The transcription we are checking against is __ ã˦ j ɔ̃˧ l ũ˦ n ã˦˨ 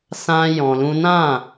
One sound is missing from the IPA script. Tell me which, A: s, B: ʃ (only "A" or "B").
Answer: A